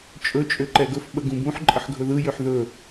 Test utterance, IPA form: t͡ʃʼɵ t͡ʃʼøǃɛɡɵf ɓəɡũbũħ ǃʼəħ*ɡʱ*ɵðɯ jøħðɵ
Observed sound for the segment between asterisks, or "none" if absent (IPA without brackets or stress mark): ɡʱ